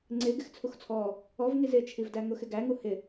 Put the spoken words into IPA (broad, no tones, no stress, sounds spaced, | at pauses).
ŋ͡ǀ ɪ ɡ ɪ x t͡sʰ u x t͡sʰ ɔ | ɔ v ŋ i z ɪ t͡ʃʰ i v d æ ŋ ʊ x ɪ ɡ æ ŋ u h ɪ